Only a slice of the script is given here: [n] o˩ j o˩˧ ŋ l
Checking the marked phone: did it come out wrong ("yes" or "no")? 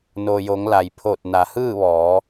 no